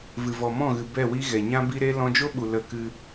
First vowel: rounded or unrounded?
unrounded